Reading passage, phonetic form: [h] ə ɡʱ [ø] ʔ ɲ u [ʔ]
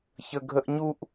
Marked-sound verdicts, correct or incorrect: incorrect, incorrect, correct

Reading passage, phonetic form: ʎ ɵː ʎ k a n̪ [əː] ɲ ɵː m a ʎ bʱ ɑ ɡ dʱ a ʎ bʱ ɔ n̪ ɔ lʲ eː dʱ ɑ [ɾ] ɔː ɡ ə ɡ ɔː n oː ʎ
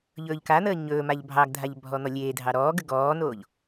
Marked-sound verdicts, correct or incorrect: correct, correct

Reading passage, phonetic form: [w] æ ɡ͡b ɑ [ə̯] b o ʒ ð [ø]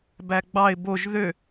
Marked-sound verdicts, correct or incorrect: incorrect, incorrect, correct

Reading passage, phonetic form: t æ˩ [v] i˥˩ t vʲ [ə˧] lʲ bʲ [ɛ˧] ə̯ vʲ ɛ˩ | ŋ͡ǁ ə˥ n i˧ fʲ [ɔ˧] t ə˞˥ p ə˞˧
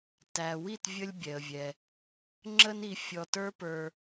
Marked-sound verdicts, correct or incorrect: incorrect, correct, incorrect, correct

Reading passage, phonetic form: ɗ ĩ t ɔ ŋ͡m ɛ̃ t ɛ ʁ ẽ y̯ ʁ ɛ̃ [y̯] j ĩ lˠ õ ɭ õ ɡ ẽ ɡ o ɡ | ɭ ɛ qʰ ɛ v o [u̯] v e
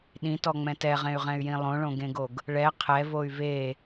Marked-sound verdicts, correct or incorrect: correct, incorrect

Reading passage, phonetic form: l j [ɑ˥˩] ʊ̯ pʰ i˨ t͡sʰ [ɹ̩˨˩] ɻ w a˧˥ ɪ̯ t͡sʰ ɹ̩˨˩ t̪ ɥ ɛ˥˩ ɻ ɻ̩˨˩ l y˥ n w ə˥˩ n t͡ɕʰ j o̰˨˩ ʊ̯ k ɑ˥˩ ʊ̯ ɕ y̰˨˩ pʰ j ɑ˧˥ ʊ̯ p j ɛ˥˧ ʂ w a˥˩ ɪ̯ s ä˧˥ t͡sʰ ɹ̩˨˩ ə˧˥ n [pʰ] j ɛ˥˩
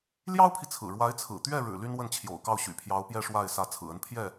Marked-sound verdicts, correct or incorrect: incorrect, correct, correct

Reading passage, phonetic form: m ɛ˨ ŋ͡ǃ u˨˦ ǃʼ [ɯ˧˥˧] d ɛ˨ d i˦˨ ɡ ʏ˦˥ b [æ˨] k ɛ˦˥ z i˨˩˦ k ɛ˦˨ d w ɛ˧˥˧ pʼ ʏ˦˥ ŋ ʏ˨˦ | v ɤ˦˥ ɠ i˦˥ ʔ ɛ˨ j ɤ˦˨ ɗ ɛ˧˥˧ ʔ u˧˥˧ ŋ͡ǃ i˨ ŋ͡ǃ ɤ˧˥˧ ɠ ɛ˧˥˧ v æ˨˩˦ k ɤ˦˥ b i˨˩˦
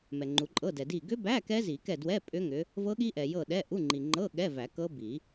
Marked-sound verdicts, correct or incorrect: incorrect, incorrect

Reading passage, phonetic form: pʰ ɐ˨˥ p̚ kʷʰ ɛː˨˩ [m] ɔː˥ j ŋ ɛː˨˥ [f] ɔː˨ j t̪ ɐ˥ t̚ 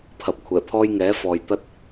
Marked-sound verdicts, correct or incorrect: incorrect, correct

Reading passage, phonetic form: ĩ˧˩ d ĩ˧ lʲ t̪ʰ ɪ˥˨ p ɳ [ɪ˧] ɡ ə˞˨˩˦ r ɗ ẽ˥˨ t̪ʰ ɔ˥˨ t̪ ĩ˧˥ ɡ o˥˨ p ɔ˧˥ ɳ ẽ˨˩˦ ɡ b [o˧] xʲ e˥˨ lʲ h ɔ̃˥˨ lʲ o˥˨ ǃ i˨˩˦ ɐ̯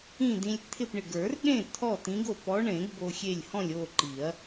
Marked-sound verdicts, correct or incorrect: incorrect, correct

